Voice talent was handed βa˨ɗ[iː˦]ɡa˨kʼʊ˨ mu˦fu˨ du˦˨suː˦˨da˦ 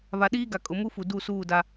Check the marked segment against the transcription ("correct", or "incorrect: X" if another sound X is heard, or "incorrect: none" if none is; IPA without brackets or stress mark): correct